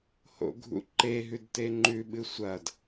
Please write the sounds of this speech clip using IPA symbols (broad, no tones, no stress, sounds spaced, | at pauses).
h o̰ ɡʱ ṵ ǃ e ɦ ʉ d t e ŋ͡ǃ ʉ ɓ ɨ sʷ ɐ d